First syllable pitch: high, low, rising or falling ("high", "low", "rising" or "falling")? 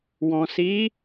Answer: low